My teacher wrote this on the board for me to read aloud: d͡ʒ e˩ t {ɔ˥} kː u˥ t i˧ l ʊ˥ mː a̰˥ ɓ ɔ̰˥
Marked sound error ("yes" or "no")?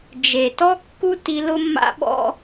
no